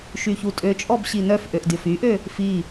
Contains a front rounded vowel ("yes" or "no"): yes